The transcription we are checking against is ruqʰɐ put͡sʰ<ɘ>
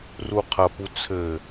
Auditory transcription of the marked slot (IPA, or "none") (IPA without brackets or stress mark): ɘ